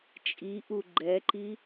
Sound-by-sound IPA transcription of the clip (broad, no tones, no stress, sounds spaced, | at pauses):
t͡ʃʼ i ʔ u ɡ͡ǃ ɛ ǃ i